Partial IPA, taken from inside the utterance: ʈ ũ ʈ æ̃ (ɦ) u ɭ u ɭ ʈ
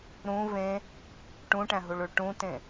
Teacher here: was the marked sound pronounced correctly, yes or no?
yes